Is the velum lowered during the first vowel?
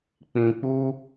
yes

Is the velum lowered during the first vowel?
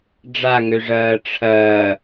no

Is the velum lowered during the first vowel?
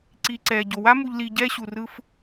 no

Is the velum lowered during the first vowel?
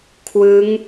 no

